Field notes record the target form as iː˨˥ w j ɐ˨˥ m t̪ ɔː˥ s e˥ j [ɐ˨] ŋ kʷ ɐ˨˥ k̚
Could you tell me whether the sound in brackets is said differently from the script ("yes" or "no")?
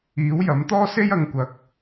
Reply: no